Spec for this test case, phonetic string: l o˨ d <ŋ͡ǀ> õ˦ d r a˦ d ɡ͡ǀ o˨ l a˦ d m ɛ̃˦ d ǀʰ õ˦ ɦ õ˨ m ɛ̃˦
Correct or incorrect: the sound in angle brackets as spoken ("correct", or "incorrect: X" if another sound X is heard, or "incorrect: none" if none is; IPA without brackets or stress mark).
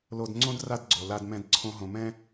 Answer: correct